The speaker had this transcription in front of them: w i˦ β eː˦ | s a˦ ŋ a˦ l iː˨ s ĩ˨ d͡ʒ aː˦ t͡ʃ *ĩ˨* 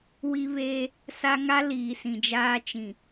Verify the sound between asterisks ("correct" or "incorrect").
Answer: correct